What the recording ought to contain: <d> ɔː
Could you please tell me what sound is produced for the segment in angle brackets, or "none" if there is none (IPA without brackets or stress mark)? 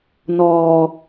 n